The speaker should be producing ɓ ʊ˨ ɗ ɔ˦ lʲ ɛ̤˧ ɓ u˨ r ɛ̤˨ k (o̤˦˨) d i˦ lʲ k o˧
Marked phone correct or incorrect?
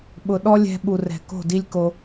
correct